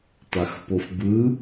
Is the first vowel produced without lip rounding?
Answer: yes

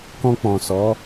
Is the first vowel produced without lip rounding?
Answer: no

